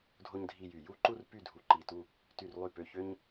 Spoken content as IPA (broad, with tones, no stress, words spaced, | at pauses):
dʱo˥ɲdʱi˥˧jy˧˩ ju˥˧ǃu˥˧r py˥˧dʱu˧˩ǃi˧˩tu˥˧ | ty˧˩rlˠy˧˩pø˧˩ çø˥ɲ